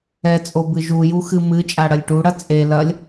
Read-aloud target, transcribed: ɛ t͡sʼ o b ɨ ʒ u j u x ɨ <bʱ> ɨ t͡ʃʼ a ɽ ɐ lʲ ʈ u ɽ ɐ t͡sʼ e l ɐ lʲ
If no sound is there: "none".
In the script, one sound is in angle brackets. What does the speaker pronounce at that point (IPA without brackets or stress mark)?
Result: m